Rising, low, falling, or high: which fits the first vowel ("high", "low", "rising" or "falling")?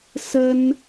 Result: high